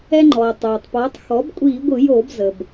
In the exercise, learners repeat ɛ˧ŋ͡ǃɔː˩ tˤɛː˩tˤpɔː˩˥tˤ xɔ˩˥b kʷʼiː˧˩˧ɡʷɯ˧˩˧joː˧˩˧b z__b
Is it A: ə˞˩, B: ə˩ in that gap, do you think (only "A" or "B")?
B